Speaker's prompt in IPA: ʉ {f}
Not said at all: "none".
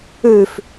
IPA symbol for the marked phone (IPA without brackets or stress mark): f